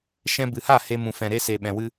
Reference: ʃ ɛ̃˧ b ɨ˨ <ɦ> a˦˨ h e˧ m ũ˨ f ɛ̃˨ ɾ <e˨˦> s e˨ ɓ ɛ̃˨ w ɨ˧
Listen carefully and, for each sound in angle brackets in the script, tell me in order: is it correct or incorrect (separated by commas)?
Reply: incorrect, incorrect